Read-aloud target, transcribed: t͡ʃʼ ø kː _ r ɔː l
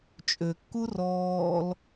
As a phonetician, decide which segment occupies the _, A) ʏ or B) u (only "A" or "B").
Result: B